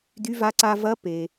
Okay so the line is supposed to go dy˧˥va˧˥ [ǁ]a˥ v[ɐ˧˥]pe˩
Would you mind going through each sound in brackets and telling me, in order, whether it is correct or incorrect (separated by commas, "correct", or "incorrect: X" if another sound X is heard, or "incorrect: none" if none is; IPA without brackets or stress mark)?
incorrect: ǀ, correct